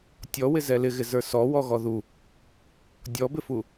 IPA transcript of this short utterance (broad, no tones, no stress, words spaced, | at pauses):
tʲɔwɪ zɛlɪɣɪzə˞ sɔ wɔɣɔðu | dʲɔbɪfu